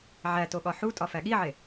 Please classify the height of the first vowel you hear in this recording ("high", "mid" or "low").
low